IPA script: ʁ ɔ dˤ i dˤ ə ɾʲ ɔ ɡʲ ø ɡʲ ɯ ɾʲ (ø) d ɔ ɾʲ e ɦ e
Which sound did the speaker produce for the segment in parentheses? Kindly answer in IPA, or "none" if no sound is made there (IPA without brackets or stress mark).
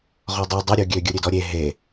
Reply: ø